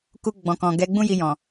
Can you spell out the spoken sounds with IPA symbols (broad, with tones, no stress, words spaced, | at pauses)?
ku˧ɡ͡bɔ̃˨kɔ̃˨ ɡɛ˨˦ɡ͡bũ˦ ji˧jɔ̃˨